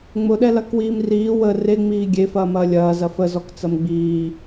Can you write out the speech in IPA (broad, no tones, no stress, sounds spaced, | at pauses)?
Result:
ŋ͡m ʊ ɗ ɛ l ɐ k w iː m r iː w ə r e ŋ͡m iː ɡʲ e f ɐː m ɐː lʲ ɐː z ɐ f ə z ɔ k t͡s ɐ m ɡ͡b iː